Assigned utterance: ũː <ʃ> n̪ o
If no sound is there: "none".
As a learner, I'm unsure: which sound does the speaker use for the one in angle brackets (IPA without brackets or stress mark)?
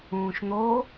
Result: ʃ